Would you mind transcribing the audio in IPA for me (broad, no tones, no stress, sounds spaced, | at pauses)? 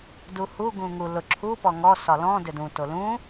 d u h u ɡ ũ ŋ u l ʊ ǁʰ u p ɔ ŋ ɔ s ɒ l ɔ̃ d ʏ d ũ t o l ũ